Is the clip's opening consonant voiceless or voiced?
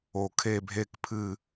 voiceless